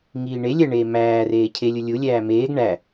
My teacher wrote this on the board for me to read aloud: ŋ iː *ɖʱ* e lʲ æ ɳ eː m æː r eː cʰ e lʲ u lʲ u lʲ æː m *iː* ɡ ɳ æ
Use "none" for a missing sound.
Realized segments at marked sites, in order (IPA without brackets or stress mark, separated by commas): ɳ, eː